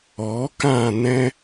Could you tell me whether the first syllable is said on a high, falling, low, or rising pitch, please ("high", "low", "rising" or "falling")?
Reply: rising